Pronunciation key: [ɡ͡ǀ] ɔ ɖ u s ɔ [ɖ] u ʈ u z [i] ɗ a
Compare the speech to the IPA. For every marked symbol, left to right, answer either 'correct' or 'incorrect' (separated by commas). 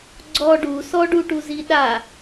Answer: correct, correct, correct